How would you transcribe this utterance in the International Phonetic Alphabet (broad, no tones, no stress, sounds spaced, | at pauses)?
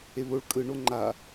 e β o ɭ kʼ ɯ ɳ o ŋ͡ǃ a